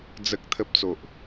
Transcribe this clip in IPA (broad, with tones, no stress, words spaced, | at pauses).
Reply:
d͡zə˨k̚ t̪ʰə˨p̚ t͡so˨ʔ